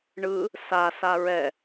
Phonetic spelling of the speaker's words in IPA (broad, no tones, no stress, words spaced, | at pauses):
ɳɯ | sasa ɹɛ